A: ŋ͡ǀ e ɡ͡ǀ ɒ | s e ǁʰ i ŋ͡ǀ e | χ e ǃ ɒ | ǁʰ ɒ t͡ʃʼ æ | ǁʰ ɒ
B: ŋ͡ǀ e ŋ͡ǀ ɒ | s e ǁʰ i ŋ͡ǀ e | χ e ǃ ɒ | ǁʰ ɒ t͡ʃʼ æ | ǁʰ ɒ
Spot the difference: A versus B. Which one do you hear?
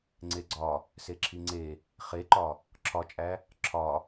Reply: A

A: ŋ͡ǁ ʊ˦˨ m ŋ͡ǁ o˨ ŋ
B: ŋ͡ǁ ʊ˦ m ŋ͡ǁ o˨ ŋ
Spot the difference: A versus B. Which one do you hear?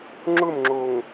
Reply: A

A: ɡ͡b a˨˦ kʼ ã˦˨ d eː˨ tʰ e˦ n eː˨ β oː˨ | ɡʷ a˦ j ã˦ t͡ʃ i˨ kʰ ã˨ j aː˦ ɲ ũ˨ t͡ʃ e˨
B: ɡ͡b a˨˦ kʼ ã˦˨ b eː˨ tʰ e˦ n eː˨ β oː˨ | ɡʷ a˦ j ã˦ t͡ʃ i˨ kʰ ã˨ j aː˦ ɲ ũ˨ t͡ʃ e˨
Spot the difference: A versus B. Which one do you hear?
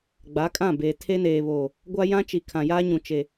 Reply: B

